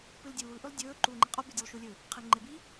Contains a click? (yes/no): yes